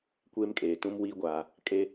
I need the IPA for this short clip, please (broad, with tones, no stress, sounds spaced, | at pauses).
kʷ eː˦ m kʼ eː˨ t ũ˦ m w iː˦ ɡʷ aː˨ | kʼ e˦